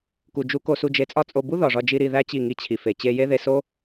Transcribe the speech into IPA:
ku˨d͡ʒu˧ko˧ su˧d͡ʒe˧t͡sʼɒ˦t͡sʼo˧ bu˦ ðɒ˨ʐɒ˧d͡ʒi˧ ɾi˧ðæ˦ t͡ɕi˦˨ŋi˧t͡ɕʰi˨ fe˨ t͡ɕe˧je˦ðe˧so˦

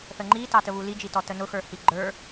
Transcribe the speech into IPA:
θəŋ͡ǃi tɑtəβuli d͡ʒitɔtənʊ xə˞hiɡ͡ǃə˞

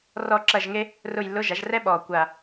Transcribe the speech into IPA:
rɔ˦˨ǁɐ˦˨ʒŋe˥ | rʊ˦˨jlːʊ˧˥˧ ʒa˩˥ʒrɛ˥ ɓɔː˨˩ kʷa˦˨

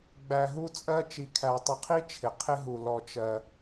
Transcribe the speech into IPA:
ɡ͡bæ˩ɦu˦t͡sʼɜ˦ t͡ʃi˩kʰæ˩tˤɪ˨qʰi˥ t͡ʃʰɪ˩qʰɪ˥ɦu˩ lɔ˩t͡ʃɜ˩

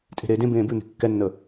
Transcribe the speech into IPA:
tʼe̤ɾeːdẽbẽː bʉn̪e̤ kːɛnːə

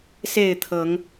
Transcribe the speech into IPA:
se˥˨ɪ̯t̪ʰɤ˨˦ŋ

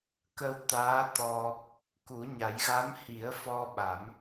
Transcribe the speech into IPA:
kə˧wt̪aː˧˥t̪ɔ˧ | ku˨˩˦ɲa˨˩˦j ɣa˧˥mhi˨˩˦ə̯fɔ˧ ɓa˨˩˦m

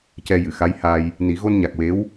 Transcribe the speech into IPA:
cɛ˧ jɨ˨˩˨xa˧˥jha˧j | ni˨˩˦ ɣo˧nɲa˨˩k̚we˧˥w

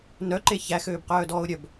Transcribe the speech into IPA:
nœǃe çæxøːbqœːdɔːʊ̯ ɾʲœb

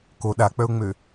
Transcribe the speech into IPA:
ko ɗak͡pœʊ̯ŋ͡mø

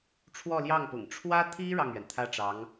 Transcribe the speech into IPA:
ʈ͡ʂʰwɔ˥˧ljɑ˥˩ŋpʊ̰˨˩ŋ ʈ͡ʂʰwä˥t̪ʰi˥ ɻɑ˥˩ŋɥɛ˩n t̪ʰä˥ʈ͡ʂɑ˧˥ŋ

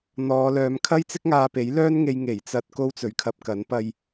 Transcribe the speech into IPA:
n̪ɔː˨˧lœː˨˧m kʰɐ˥jt͡sɪ˥k̚ ŋaː˧pe˨˥jlœː˥nŋe˧j ŋe˨˩jt͡sɐ˧t̚ ko˥wt͡sɵ˨˥ɥkʰɐ˧p̚kɐ˨˥n pɐ˧j

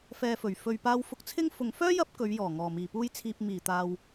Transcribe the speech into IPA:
fɛː˧fɵ˨˩ɥ fɵ˨ɥ paː˧wfʊ˧k̚t͡sʰɪ˥ŋ fʊ˨ŋfœː˥ jɐ˥p̚kɵ˨˧ɥjɔː˨˩ ŋɔː˨˩miː˨˩puː˥jt͡sʰiː˧p̚ miː˨˩t̪aː˨w

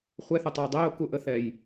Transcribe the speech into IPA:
χʷɛθətˤɤɪ̯ dˤeʊ̯kuʔəθɛj

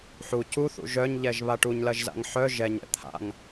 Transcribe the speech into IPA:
ħu cuθṵ ʒœɲʎɛʒ βaʈuɲlɐʒza̰ŋ ħœ ʒɛɲɛ̰ t̪ʰa̰ŋ

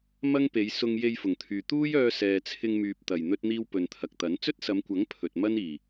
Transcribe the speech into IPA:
mɐ˥ŋpe˨˧jsʊ˧ŋ je˧jfʊ˨˩ŋt̪ʰyː˨ t̪uː˥jœː˧ sɛː˨t͡sʰɪ˧ŋmyː˨p̚t̪ɐ˨˩j n̪ɵ˥t̚n̪iː˥w pɵ˨nt̪ʰɐ˨k̚t̪ɐ˨˥n t͡sɵ˥t̚sɐ˨˧mkʷɐ˨˥ŋ pʰɵ˨t̚mɐ˥niː˨˩

